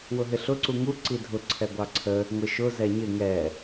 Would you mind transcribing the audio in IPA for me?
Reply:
w ʊ ɦ ɪ ɬ ʊ ǀ u ŋ u ǀ i dʱ ʊ ǀʰ ɛ ɡʷ ɑ ǀʰ ə | ŋʷ ɪ ʃ ʊ z ɛ ɲ ɪ ŋ ɛ

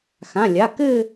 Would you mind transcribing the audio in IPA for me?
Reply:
x ã˩˧˩ lʲ a˩˧˩ k ɘ˥˧

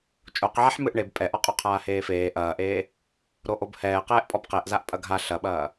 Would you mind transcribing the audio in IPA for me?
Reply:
t͡ʃʼ o q ʕ a ħ m ɨ ʔ ɳ e b pʼ ɛ ʔ ɔ qʼ o qʰ aː h eː f eː ʔ ɐː ʔ eː | ɾ o ʔ o b h ɛː q ɛː ʔ pʼ ɔ b q e ʔ z a ʔ pʼ ɐ ɡʱ a ɬ ɐ ɓ ɐː

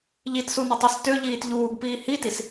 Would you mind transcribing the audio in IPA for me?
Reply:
ʎ i t s u n ə tˤ ø s t ø ʎ iː t ʎ uː ɡ p iː h i t i s

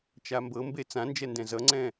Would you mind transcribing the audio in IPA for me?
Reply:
t͡ʃ a m b ɤ m b e t͡s ã n d͡ʒ ɛ n d ɛ̃ z ʌ ŋ͡ǀ ɛ̃

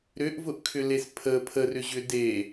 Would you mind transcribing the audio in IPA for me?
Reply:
ɾ ʏ ʔ v ʊ ʔ kʰ ʏ l e s pʰ ə pʰ ə r ʏ ʑ ʏ d e

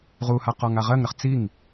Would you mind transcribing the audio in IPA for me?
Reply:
ʁ u h a q ɔ ŋ a ʁ ɜ ŋ ɾ ə χ t͡s i ŋ

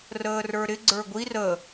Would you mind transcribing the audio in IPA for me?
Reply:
r əː r ə˞ ɾ ɪ ɡ͡ǀ ə˞ ɡʷ i r ə

